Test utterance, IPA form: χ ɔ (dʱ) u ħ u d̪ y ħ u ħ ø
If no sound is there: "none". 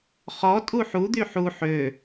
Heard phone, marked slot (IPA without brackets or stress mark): tʼ